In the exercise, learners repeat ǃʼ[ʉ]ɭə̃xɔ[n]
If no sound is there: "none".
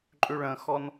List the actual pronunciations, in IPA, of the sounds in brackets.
ʉ, n

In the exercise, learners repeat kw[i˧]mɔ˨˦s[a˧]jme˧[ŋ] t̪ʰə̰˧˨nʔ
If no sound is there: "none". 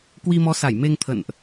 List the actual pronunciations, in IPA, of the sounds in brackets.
i˧, a˧˩, ŋ

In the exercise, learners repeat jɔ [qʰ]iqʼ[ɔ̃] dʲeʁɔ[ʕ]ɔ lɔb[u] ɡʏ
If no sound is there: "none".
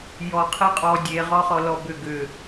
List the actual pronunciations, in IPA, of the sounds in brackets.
qʰ, ɔ, χ, ʏ

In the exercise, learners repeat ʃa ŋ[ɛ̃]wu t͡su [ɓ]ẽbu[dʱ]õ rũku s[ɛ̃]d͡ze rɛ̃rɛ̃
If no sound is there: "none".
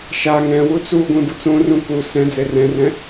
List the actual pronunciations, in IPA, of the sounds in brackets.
ɛ̃, ɡʷ, t͡s, ɛ̃

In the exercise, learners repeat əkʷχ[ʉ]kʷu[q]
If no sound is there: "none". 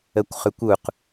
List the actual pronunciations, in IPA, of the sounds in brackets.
ʉ, q

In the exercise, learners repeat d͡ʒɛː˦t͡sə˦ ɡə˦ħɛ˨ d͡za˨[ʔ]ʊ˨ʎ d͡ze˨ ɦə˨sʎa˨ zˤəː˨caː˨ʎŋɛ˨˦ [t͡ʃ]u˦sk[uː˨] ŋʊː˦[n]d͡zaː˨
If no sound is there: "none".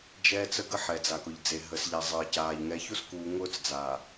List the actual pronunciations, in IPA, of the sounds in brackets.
k, ç, uː˨, t͡s

